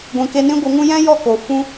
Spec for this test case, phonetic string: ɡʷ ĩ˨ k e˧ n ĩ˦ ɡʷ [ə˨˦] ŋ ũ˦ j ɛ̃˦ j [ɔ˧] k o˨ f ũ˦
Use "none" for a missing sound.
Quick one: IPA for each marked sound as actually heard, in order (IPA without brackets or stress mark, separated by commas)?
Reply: ə˨˦, ɔ˦˨